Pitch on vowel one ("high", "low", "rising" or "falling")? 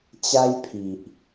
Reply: high